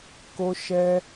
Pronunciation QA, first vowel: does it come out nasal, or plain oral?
oral